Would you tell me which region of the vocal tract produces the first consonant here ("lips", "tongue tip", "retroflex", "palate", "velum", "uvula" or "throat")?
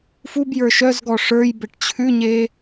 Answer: lips